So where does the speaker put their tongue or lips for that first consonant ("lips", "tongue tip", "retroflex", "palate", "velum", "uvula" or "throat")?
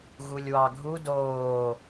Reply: velum